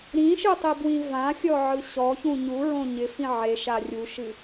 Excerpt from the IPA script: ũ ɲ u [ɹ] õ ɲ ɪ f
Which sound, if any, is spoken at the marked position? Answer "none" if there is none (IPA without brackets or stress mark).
ɹ